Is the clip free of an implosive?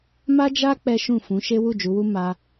yes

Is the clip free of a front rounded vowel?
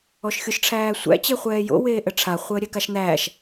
yes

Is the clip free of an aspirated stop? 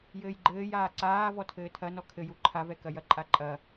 no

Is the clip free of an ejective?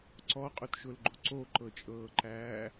no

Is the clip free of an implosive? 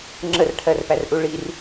yes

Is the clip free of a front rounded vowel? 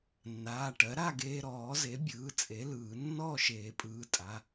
yes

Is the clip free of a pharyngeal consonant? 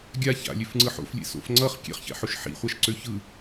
no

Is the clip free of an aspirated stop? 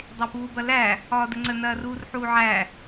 yes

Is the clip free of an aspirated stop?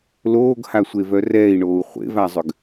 yes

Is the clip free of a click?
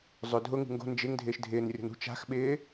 yes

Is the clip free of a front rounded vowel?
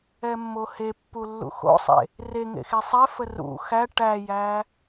yes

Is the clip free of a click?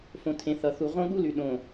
yes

